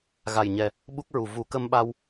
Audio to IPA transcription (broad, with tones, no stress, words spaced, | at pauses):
ɣa˨˩jɲɛ˨˩ | ɓu˦˥k̚ɹu˨˩ vu˨˩˦kə˧mɓa˧w